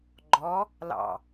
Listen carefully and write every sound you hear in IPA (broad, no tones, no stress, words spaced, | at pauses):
ɡ͡ǃɔ | lɑ̰